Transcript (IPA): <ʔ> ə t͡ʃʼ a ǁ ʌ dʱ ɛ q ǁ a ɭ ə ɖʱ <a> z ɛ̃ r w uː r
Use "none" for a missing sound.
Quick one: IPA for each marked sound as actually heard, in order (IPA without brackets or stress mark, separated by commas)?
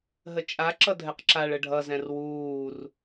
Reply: ɦ, ʌ